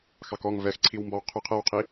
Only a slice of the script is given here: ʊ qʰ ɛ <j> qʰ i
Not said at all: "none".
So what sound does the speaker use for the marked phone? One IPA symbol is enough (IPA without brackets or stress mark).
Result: w